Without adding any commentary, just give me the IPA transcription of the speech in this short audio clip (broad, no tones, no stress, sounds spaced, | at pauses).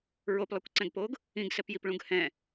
ɹ o p lˠ ɛ kʷ ǀ ɛ̃ ɡ p oː ɡ | ĩ ɡ s ɛ p j i p ɭ ũ ɡ h ɛ̃